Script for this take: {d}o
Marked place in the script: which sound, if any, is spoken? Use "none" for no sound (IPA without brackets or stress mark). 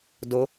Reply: d